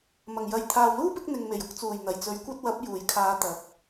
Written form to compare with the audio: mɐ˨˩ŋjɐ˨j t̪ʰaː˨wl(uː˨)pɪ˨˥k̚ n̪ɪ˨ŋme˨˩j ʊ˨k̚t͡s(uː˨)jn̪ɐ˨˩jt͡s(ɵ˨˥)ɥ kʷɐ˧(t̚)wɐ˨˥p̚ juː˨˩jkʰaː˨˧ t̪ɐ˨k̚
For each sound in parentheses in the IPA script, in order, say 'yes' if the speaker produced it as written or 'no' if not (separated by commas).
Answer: no, no, yes, yes